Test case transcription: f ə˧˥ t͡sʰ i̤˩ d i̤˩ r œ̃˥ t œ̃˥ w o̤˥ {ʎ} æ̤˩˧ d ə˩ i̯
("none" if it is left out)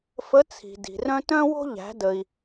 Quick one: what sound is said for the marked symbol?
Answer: ʎ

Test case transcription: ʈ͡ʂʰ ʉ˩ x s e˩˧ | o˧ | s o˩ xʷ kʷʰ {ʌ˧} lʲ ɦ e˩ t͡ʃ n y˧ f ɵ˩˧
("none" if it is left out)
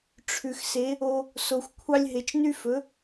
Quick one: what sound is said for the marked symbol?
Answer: ɑ˧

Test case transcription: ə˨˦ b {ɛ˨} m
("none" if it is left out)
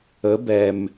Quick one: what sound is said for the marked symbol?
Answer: ɛ˨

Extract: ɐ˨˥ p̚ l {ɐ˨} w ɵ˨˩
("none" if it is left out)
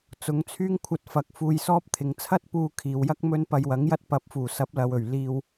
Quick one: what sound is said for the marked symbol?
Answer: ɐ˨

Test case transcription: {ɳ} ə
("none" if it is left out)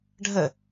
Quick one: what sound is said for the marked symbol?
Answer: ɖʱ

